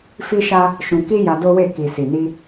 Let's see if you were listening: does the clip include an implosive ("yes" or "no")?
no